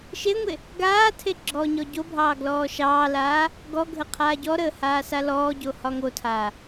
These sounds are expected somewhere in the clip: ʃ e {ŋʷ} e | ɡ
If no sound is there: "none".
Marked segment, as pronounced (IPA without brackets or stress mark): ŋʷ